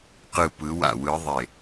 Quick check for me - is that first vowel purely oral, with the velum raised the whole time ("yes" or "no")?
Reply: yes